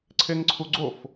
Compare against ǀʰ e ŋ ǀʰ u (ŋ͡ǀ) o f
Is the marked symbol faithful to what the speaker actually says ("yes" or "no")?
no